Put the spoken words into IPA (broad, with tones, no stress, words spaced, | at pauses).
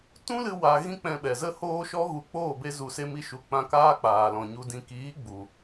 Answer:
tũ˦lɨ˧ wa˧ ɣĩ˦k͡pɛ̃˧ɓɛ˨zə˦ hoː˦ʃɔ˦ɣu˧ k͡poː˦˨be˧zu˨se˧ mi˦ʃu˧ k͡pã˧ kaː˦k͡paː˨ lɔ̃˨ ɲu˨ dĩ˨kiː˨˦ ɡ͡bu˨